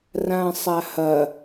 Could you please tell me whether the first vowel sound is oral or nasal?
nasal